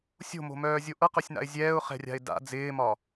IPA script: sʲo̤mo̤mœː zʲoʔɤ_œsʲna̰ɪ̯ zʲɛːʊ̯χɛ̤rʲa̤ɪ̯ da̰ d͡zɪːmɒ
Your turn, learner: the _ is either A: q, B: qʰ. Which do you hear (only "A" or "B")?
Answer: A